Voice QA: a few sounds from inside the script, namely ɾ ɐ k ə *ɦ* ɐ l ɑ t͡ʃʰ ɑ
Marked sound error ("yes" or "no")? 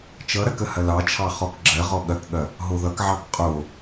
yes